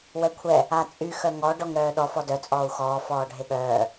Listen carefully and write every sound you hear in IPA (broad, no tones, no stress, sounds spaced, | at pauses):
w ɛ kʷʰ ɛ | a t͡sʼ y x œ ŋ ɔ ɖ ɔ ŋ ɾ œː ɗ ɔ f ɔ d œ t͡sʼ ɔː u̯ x ɔː f ɔː ɖʱ e ɠ œː